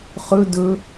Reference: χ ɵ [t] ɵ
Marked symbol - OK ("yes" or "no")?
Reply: no